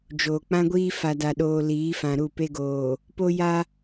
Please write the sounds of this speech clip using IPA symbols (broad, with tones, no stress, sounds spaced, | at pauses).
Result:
d͡ʒ oː˨ k͡p ã˦ ɡʷ iː˦ f a˨ d a˨ ɗ oː˨ l iː˨˦ f ã˨ ɾ u˦˨ p e˦ ɡ oː˨ | p o˦ j a˦